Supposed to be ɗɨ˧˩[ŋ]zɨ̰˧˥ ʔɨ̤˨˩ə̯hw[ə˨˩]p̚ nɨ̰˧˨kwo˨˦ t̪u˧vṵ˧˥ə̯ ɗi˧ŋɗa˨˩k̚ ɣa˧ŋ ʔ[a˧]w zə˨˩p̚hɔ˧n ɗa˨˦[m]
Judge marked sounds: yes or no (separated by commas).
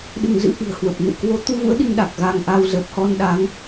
yes, yes, yes, no